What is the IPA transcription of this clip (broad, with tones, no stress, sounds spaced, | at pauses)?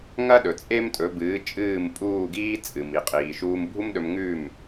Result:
ŋ ɐ˥ ɗ ɵ˩ t͡sʼ e˥ m tʼ ɵ˩˥ b ɨː˩˥ t͡ʃʼ ɨː˥˩ m pʼ uː˥˩ ɡ iː˥ t͡sʼ ɨ˩ m i˩ qʼ iː˩ ʃ uː˧ m bʱ u˥ m ɗ ɵ˧ m ŋ ʉː˥˩ m